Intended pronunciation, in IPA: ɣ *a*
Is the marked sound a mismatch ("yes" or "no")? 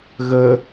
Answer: yes